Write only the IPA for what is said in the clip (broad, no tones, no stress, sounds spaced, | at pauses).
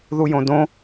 ð u j õ d õ